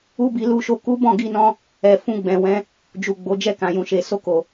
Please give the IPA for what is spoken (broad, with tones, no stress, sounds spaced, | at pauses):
u˦ b i˧ l u˧ ʃ o˧ k u˦ b ɔ̃˦˨ ɡ i˧ n ɔ̃˧ | ɛ˨ f ũ˧ ɡ͡b ɛ̃˨ w ɛ̃˧ | d͡ʒ u˨ ɡ͡b o˨˦ d͡ʒ ɛ˦˨ k ã˨ j ũ˨ ʃ e˨ s o˧ k o˨